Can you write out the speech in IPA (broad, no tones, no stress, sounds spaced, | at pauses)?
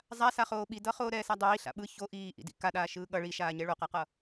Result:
zˤ a s a χ oː ɓ i d ʌ χ oː ɾ ɛː s a dˤ iː ɬ a̰ ɓ ɯ ç o ʔ iː ʔ ḭ d ḭ k a ɗ aː ʃ ɯː ɠ ʌ ɭ i ʃ aː ɲ ɛ ɭ o q a q ʌ